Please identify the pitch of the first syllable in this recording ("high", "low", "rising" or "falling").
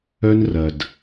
high